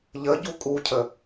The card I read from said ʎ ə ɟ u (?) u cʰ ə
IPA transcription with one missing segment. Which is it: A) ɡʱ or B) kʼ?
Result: B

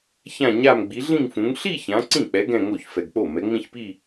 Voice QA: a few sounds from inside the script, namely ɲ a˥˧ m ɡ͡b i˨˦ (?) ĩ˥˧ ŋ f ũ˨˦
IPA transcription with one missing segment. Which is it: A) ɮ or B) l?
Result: A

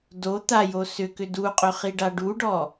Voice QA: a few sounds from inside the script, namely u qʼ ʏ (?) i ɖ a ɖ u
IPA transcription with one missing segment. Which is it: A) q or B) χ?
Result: B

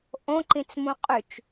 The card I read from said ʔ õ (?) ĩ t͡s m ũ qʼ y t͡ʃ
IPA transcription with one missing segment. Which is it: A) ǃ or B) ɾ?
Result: A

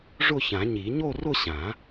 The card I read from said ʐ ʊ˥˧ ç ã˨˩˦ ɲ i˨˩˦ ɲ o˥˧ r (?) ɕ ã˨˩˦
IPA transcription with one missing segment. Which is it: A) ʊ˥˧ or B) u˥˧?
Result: A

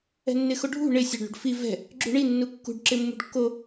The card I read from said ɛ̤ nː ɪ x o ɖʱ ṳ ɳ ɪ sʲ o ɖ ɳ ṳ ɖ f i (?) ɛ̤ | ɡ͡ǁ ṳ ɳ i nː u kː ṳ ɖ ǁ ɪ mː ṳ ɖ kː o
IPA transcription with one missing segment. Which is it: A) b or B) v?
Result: B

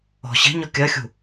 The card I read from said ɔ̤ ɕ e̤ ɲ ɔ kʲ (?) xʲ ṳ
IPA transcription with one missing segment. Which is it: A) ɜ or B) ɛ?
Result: A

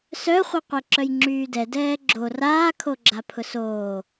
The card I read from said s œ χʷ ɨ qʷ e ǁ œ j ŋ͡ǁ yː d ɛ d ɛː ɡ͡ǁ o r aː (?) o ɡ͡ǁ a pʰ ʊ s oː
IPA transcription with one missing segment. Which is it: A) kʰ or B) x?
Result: A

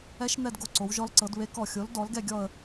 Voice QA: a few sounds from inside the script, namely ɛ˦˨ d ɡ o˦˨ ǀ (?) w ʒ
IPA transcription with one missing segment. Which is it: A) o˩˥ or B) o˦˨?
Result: A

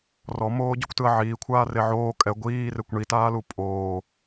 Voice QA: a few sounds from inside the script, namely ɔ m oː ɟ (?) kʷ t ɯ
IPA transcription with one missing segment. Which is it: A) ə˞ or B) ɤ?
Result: B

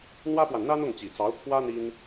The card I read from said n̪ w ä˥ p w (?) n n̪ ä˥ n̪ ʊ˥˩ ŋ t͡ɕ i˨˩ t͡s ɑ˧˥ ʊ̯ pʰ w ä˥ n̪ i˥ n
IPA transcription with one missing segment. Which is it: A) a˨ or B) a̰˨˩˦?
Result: A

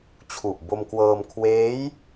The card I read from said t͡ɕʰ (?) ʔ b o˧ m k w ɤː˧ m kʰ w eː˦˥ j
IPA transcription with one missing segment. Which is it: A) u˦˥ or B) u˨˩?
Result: B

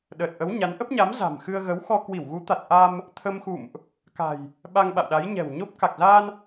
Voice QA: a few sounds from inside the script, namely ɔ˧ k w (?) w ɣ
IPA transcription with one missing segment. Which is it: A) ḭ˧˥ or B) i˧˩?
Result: B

